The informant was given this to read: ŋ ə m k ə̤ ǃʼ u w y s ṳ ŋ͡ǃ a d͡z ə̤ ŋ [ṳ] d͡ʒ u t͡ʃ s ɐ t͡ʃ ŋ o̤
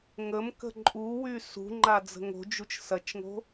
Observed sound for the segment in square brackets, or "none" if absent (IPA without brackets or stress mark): o̤